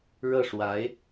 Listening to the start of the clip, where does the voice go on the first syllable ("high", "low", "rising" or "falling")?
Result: falling